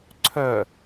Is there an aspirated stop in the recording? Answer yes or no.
yes